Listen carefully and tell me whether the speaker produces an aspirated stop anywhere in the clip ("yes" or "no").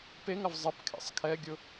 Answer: yes